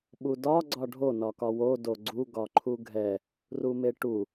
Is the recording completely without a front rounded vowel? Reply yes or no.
yes